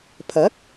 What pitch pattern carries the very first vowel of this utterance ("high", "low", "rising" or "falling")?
rising